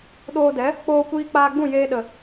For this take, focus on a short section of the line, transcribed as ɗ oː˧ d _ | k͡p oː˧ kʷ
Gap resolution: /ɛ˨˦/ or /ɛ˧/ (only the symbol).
ɛ˨˦